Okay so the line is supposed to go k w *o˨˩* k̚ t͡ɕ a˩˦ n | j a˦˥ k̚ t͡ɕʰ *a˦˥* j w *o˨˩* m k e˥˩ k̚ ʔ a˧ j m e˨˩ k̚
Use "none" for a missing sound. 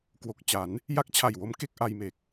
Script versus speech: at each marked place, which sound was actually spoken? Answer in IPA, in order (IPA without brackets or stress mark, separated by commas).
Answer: o˨˩, a˨˩, o˦˥